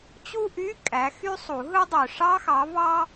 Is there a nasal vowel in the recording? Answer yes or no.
no